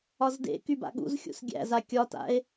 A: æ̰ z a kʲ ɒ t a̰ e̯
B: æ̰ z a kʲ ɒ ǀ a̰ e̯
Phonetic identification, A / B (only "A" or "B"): A